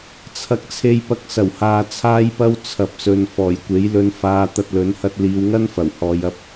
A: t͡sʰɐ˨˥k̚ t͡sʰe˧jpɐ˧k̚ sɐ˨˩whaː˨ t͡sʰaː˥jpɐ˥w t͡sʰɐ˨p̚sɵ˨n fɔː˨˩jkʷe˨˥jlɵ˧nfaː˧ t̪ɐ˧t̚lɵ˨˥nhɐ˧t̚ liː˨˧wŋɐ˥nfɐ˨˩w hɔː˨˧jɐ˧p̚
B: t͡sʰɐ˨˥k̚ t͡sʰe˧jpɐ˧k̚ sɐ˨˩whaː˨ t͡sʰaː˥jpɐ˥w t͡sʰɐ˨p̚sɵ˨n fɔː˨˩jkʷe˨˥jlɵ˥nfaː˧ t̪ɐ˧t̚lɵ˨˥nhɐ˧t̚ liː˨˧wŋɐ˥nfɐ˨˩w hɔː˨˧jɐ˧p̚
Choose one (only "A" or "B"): A